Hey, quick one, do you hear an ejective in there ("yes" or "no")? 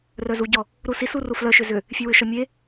no